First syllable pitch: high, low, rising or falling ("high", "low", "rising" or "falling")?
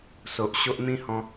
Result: low